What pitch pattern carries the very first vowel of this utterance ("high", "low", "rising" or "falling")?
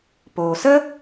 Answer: low